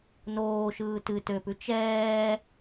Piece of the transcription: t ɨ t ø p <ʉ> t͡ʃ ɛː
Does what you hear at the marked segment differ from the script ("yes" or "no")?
no